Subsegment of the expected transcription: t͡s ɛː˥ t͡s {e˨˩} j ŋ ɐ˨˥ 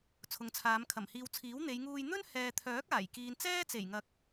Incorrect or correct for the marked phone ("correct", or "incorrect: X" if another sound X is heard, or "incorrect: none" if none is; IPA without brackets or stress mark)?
correct